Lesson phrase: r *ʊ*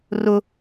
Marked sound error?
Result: no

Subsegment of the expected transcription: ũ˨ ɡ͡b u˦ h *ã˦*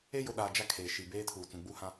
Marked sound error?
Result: no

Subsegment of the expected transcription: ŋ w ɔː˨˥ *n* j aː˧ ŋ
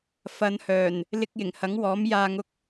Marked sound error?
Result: yes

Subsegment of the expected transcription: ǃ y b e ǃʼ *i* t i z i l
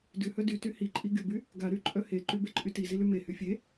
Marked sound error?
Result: yes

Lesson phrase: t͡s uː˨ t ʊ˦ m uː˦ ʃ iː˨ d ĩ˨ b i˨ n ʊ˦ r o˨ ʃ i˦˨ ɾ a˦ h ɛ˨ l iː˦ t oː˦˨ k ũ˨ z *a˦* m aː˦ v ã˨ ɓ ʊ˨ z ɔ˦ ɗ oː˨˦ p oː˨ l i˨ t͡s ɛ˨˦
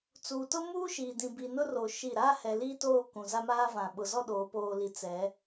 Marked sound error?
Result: no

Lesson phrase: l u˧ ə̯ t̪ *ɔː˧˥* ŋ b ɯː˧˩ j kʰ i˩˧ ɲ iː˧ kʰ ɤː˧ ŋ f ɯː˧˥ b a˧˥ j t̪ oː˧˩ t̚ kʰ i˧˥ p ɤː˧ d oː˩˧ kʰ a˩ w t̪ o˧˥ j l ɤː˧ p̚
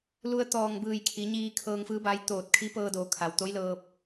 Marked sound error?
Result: yes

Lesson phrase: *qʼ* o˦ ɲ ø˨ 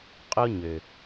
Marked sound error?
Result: no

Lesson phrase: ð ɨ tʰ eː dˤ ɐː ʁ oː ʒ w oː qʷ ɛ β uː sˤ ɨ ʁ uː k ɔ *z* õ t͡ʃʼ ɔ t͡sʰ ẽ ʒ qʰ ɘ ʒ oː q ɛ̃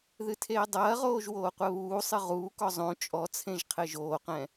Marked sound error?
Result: yes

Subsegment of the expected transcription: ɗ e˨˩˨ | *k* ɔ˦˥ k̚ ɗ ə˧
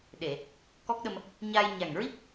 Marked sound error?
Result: no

